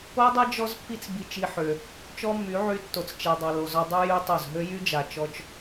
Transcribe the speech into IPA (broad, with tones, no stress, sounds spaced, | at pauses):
o˦ dˤ ɛ˦ d͡ʒ ɔ˦ z pː i˦ t͡s b i˧ t͡ʃ i˧ ħ ø˨ | t͡ʃ ɔ˦ mː y˨˦ ʕ y˧ tː o˨ t͡s t͡ʃ ɛ˨ dˤ a˨ l o˨ z ɔ˧ dˤ u˦ j y˦ tˤ o˦˨ z ɦ ø˦ j y˦ d͡ʒ a˨ t͡ʃ ɔ˧ t͡ʃ